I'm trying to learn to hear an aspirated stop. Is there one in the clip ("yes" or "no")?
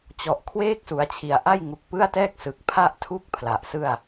yes